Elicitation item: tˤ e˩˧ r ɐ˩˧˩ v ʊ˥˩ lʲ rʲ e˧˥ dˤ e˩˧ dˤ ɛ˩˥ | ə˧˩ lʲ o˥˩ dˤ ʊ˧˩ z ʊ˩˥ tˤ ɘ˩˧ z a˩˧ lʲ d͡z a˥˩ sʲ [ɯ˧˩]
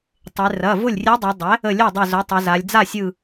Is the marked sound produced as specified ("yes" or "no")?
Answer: yes